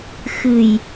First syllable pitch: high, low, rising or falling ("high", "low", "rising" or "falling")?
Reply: low